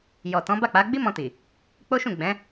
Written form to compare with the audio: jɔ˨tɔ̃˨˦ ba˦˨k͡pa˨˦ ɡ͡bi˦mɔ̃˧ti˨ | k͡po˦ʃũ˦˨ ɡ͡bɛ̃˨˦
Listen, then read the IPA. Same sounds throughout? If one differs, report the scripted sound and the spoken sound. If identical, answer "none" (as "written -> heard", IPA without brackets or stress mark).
none